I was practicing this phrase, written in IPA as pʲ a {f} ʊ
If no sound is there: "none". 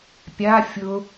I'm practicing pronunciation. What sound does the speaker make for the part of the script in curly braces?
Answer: fʲ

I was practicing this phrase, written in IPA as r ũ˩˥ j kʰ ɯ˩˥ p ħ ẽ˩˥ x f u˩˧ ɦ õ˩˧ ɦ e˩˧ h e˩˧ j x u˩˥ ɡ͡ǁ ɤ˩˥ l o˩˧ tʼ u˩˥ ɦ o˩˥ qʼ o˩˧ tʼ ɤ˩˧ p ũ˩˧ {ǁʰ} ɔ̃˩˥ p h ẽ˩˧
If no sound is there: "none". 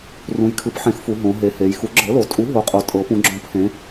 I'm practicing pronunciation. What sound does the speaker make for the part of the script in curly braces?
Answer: ɡ͡ǁ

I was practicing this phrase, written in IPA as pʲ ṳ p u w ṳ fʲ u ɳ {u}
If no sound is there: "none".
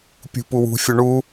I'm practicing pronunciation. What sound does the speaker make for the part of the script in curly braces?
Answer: u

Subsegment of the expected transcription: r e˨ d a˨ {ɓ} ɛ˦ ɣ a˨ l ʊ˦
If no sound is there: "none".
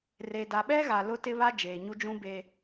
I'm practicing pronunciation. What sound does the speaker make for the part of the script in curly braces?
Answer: ɓ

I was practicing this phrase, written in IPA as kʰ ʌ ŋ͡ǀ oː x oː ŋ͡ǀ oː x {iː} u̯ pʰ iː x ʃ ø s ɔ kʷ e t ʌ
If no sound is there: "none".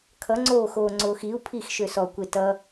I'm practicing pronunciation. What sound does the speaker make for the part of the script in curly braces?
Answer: i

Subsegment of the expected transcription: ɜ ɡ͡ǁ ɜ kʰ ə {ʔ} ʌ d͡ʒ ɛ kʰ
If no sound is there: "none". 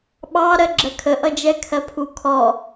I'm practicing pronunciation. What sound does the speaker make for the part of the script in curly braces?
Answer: ʔ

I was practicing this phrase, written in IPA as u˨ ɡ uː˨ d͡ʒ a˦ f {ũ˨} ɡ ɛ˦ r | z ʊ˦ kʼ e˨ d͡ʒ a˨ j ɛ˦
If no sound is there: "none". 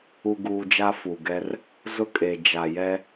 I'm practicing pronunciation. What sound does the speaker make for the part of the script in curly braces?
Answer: u˨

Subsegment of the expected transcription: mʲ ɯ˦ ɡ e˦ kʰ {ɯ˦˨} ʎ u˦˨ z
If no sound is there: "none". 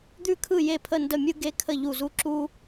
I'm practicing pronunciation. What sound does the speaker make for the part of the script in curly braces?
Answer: ə˦˨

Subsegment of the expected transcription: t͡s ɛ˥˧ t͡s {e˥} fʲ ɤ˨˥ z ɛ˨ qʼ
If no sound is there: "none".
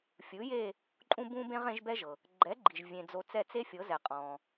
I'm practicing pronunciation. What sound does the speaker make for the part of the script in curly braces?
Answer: e˥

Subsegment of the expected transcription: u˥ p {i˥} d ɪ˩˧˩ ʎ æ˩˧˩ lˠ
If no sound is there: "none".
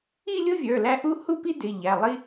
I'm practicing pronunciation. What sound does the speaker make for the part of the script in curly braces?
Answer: i˥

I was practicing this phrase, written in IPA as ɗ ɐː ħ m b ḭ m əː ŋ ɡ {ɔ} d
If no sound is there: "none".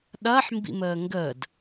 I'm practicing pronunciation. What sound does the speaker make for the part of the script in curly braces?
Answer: ə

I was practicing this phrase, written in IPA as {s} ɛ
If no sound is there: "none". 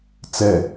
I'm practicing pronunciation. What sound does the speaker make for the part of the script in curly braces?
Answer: t͡s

